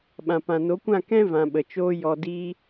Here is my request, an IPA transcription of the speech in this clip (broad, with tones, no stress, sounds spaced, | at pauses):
ɓ ã˨ p ã˨ n o˨˦ kʷ ã˦˨ k ɛ̃˦ v ã˨ ɓ ə˨ t͡ʃ oː˧ j ɔ˨ d iː˧